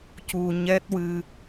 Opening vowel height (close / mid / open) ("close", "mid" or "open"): close